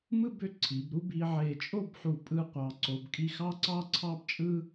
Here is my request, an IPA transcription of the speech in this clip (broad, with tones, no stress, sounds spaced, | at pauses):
m ɯ˥˧ b ø˧ ǀʰ i˩˧ b ɾ u˥ b i˧ ʕ e˧˩ t͡ʃʼ o˥˧ b ħ u˧˩ pʼ ɯ˥ qʷ ɑ˧ ǀ o˧ b kʼ i˥ x ɑ˥ ǀ ɑ˥ ǀʰ ɑ˥ b t͡ʃʼ ɯ˥